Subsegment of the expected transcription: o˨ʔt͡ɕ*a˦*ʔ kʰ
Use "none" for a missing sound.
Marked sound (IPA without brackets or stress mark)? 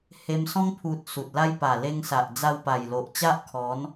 a˦